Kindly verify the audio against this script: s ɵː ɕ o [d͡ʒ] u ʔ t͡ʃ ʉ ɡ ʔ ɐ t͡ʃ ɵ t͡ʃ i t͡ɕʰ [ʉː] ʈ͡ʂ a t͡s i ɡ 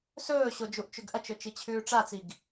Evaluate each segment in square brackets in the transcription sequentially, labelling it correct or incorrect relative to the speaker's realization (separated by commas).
correct, correct